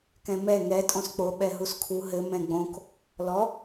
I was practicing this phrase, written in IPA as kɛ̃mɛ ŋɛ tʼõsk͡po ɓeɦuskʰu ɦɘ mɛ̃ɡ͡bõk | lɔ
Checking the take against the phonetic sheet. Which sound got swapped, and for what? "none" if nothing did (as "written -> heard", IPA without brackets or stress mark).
e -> ɛ